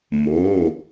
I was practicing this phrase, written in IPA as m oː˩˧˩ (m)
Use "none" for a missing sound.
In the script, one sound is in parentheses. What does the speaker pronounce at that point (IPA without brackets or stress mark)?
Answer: none